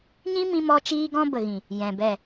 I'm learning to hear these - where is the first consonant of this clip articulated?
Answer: palate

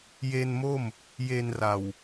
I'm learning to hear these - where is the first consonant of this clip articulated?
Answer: palate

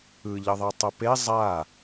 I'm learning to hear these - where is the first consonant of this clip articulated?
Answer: palate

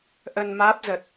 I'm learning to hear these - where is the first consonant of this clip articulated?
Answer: throat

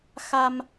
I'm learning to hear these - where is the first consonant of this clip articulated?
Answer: velum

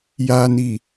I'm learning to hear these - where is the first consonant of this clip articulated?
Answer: palate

